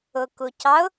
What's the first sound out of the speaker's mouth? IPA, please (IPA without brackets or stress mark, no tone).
ʊ